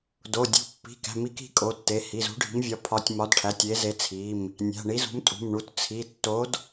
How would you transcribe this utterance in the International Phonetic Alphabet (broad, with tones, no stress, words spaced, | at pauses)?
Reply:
do˩˧˩ dʲṳ˩˧˩pːi̤˩˧˩ kæ̤˩˧˩mi˨˥k i̤˩˧˩kʼo˩˧˩tːe˩˧˩ hi˩˧˩zṳ˨˥ɖʱi̤˨˥mvʲɒ˨˥ pʰɒ˨˥tʲ mɒ˨˥dʈʰæ˩˧˩tʲ e˨˥ze˨˥t͡sʰi˩˧˩m | nʲæ̤˩˧˩ɳi˨˥zṳ˨˥m tʼṳ˩˧˩mɳu˩˧˩t t͡sʰi˩˧˩ tːo˨˥d